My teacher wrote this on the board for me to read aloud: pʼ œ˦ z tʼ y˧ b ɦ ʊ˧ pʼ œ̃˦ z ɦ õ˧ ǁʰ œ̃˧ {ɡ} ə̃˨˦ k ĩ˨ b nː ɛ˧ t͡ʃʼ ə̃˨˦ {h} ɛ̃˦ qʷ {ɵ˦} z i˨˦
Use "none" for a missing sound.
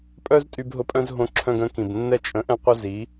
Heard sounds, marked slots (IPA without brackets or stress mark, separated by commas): ɡ, ʔ, œ˦